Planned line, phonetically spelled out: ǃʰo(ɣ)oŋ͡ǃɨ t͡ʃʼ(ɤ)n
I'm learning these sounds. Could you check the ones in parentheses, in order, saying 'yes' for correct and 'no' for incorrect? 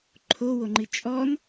no, no

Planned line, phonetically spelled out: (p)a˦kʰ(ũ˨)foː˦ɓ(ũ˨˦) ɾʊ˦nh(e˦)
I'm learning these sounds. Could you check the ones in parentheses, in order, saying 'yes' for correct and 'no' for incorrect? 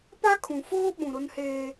yes, yes, no, no

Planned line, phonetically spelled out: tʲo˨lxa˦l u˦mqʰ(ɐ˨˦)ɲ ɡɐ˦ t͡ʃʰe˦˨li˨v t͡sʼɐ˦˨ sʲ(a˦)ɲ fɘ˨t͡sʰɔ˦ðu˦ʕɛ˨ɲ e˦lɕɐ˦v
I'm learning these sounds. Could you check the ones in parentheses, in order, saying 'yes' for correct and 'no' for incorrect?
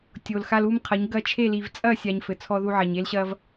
yes, no

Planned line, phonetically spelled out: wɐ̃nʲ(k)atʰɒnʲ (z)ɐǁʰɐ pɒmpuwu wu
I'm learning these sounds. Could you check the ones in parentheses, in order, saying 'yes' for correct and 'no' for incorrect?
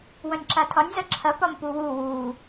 no, yes

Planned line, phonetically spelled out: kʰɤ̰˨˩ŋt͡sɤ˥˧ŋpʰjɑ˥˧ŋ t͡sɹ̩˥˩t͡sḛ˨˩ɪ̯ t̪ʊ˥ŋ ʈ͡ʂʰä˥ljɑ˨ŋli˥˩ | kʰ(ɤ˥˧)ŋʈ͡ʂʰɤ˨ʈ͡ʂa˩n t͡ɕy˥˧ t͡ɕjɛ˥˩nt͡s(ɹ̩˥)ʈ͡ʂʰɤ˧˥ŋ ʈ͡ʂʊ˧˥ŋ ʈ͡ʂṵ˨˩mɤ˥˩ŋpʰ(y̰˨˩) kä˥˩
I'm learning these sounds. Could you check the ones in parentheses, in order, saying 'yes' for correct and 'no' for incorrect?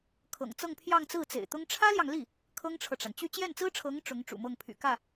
no, yes, yes

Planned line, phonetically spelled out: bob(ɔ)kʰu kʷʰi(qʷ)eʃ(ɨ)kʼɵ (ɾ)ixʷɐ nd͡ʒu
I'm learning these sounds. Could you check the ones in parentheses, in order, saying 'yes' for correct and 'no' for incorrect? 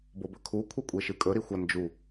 no, no, yes, yes

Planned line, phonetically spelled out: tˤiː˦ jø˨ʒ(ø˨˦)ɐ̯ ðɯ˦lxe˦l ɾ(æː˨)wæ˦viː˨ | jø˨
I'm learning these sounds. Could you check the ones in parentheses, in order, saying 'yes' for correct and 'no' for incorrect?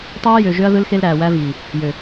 no, yes

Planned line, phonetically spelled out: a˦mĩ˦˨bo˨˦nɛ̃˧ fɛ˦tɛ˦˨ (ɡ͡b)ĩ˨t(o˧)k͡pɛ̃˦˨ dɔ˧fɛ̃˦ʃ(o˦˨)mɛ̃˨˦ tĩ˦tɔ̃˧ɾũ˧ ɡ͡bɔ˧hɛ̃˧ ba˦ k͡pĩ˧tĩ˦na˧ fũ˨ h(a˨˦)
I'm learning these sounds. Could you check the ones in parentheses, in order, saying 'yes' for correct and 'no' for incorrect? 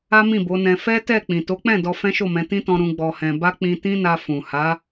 no, no, yes, yes

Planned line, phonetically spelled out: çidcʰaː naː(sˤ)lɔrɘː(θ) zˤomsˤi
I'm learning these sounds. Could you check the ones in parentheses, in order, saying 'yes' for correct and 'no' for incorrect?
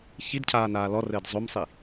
no, no

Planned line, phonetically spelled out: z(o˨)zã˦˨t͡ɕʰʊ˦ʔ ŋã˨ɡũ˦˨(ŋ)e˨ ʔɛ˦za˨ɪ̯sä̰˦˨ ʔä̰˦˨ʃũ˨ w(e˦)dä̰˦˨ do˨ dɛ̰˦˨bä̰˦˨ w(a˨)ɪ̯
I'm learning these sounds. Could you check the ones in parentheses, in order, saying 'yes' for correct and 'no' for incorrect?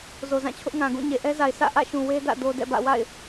yes, no, yes, no

